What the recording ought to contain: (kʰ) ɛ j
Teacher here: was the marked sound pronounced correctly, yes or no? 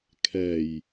yes